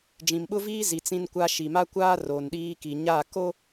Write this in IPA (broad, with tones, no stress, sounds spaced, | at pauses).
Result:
d͡ʒ ĩ˨ m ɓ ʊ˦ v iː˦ z i˨ t͡s ĩ˦ n kʷ a˦ ʃ i˨ m a˦ kʷ aː˦ r o˨ n ɗ iː˦ k i˨ ɲ a˦˨ k o˦